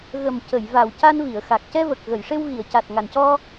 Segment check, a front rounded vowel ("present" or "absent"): absent